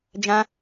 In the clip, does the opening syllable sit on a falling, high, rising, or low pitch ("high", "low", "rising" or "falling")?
high